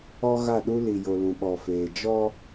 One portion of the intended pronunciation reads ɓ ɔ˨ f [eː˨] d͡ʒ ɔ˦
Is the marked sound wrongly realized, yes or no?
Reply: no